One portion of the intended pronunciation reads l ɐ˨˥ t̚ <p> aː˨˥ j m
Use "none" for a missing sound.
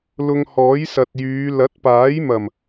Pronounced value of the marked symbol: p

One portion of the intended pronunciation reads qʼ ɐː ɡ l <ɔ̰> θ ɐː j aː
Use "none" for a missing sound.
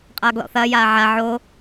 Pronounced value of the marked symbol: ɔ̰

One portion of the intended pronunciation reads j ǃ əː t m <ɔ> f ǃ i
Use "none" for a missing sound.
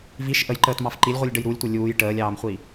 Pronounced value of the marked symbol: ɑ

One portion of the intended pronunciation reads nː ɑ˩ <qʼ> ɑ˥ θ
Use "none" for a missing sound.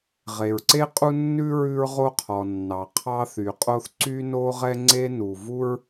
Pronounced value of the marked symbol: qʰ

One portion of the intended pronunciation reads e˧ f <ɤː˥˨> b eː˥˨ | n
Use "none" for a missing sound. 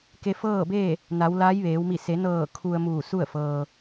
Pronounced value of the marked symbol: ɤː˥˨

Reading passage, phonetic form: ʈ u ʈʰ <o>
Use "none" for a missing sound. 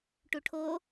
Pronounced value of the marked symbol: o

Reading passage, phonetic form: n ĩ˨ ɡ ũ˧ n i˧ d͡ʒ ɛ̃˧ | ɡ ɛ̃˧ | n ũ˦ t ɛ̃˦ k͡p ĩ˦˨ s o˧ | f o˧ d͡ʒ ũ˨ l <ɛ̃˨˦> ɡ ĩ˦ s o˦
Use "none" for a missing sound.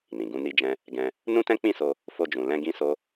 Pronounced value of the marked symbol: ɛ̃˧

